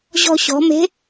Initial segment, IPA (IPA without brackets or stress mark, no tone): ʑ